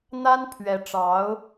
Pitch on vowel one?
high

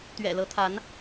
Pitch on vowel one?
low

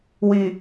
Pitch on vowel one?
low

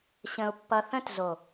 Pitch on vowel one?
low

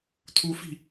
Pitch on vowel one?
rising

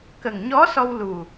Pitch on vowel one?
low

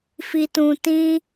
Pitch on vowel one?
low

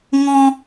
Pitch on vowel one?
high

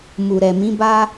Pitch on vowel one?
low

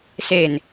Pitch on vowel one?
low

